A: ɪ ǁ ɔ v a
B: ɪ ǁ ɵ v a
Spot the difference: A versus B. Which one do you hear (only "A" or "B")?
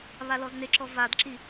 A